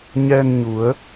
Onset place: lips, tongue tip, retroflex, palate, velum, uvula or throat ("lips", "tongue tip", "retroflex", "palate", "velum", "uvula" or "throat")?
palate